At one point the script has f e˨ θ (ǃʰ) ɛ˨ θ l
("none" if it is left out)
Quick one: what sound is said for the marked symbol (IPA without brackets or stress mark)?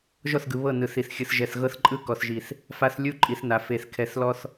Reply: kʰ